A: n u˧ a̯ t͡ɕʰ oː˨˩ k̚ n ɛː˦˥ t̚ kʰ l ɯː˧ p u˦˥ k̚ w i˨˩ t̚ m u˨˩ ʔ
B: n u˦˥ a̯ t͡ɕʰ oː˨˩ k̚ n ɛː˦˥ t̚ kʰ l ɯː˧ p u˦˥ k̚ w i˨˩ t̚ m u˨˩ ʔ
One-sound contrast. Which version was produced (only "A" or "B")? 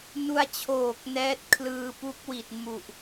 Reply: A